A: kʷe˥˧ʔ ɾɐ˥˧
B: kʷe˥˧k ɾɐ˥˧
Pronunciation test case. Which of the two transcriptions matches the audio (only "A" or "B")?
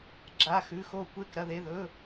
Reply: B